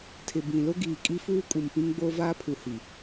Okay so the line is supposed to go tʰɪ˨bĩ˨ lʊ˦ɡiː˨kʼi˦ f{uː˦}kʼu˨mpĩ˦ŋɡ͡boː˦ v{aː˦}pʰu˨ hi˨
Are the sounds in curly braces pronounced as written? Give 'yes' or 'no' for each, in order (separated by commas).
yes, yes